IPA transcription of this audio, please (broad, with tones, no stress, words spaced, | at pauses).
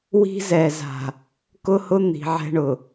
wi̤˦zɛ˨ za̤˨ | kʊ˦hʊ˦ n̪i̤˨ʕɛ̤˦ ɳʊ˨